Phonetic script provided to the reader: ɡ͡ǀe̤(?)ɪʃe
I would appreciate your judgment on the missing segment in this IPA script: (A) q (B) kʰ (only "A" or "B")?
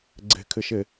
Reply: B